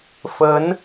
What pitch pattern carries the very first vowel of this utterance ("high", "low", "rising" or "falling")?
rising